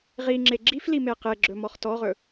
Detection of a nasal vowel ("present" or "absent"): absent